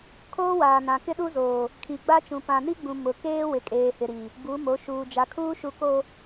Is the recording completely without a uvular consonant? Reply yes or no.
yes